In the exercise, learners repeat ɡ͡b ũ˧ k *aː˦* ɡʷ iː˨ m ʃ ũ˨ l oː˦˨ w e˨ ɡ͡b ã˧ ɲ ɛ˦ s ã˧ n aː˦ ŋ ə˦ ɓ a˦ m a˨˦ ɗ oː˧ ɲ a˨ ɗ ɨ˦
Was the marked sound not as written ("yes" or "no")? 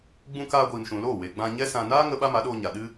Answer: yes